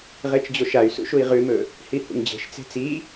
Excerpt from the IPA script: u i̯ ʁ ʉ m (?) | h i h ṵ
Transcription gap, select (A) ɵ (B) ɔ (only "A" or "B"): A